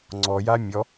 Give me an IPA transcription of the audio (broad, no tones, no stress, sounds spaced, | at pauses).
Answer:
ŋ͡ǀ ɔ j a mʲ ɔ